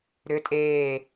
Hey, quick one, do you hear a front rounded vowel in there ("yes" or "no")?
yes